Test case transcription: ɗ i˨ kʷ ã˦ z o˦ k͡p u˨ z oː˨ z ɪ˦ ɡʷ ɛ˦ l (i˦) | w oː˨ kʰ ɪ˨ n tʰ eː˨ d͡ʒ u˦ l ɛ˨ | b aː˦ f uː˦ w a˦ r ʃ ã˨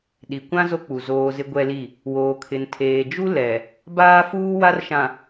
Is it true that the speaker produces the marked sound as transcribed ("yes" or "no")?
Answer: no